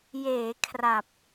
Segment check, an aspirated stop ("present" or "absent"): present